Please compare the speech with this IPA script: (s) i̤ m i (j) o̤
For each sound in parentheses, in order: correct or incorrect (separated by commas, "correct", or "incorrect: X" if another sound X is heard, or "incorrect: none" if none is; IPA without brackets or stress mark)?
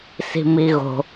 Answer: correct, incorrect: ɣ